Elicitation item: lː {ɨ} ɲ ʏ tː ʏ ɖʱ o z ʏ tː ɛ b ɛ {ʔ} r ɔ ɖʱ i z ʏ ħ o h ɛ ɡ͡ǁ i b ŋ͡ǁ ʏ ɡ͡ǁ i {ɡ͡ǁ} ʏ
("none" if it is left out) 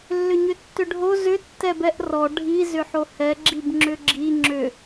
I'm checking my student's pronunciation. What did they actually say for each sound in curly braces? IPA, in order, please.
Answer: ʏ, ʔ, ŋ͡ǁ

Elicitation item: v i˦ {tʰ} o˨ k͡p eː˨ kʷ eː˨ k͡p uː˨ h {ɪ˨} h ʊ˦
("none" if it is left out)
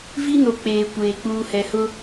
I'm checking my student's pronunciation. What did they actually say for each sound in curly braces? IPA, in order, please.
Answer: n, ɛ˨

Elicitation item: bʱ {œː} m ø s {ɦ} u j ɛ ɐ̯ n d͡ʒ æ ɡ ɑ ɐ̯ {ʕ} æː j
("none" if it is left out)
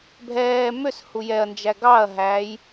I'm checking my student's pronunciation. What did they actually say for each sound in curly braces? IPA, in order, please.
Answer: ɛː, h, ɦ

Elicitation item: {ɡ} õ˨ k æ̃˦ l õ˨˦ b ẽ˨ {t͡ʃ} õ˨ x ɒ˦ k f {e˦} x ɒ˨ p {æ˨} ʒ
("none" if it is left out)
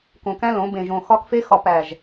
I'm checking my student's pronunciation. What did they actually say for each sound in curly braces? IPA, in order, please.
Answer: k, ʒ, e˦, æ˨

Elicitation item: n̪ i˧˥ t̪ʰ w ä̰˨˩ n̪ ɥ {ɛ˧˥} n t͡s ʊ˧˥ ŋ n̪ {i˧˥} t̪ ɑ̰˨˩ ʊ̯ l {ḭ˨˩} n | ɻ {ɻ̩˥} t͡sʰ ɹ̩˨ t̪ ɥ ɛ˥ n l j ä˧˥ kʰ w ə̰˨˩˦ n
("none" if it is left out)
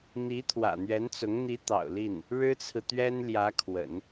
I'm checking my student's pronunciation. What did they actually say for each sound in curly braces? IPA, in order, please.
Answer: ɛ˧˥, i˧˥, i˥˩, ɻ̩˥

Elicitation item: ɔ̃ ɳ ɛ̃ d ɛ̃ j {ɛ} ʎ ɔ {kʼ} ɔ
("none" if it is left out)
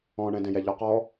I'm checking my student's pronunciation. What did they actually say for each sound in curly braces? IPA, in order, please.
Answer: ɛ, q

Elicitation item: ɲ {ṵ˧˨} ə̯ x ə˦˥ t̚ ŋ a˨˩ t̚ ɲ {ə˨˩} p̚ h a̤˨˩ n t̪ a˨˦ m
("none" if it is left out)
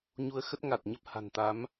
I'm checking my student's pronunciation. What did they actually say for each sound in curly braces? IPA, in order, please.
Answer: u˧, ə˦˥

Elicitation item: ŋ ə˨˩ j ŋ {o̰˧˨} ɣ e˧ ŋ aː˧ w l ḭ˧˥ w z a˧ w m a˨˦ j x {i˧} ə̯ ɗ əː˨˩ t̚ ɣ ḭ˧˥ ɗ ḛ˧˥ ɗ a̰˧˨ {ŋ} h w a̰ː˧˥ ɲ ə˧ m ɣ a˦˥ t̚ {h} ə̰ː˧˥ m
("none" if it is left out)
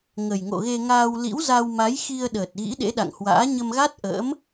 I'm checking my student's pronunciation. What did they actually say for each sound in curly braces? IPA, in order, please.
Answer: o̰˧˨, i˧, ŋ, ʔ

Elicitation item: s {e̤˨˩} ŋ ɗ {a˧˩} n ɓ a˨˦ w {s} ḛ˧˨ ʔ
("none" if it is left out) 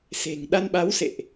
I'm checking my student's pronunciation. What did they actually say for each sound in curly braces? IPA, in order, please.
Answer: e̤˨˩, a˧, s

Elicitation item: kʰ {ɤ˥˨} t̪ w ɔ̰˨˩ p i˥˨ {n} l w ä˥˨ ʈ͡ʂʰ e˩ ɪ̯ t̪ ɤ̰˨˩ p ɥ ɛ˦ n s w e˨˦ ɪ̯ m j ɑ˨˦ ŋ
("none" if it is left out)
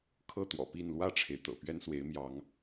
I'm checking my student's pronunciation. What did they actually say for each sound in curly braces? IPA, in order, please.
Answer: ɤ˥˨, n

